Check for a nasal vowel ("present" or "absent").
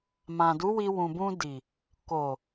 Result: present